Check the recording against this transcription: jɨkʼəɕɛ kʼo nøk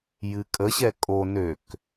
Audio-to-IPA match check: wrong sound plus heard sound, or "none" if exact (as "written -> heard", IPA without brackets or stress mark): none